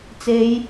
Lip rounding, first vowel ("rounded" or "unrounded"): unrounded